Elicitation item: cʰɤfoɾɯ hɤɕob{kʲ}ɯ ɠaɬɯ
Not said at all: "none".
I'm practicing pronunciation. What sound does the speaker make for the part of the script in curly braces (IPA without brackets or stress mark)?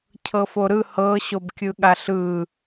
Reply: kʲ